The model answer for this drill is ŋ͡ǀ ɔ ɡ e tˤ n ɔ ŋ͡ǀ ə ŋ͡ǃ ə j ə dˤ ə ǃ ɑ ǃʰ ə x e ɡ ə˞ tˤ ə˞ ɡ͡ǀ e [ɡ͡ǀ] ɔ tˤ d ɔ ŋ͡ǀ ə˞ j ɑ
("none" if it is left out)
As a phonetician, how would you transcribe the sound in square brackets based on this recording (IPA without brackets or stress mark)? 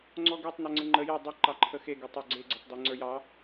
ɡ͡ǀ